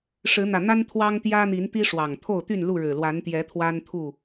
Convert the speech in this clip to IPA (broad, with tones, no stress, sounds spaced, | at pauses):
ʂ ɻ̩˨˦ n̪ ä˨˩ n̪ a˦ n t̪ʰ w ɑ˦ ŋ t̪ j ä˦ n̪ i˨˦ n t̪ i˦ ʂ w ɑ˨˩ ŋ t̪ʰ o˥˨ ʊ̯ t̪ y˥˨ n l u˥˨ ɻ ɻ̩˨˩ l w a˨˦ n t̪ j ɛ˨˦ t̪ʰ w a˦ n t̪ʰ u˥˨